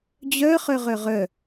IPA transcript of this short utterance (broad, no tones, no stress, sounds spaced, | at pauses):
d͡ʑ œ χ œ ʁ œ ʁ œ